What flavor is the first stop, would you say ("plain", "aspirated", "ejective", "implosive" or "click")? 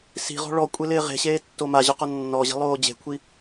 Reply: ejective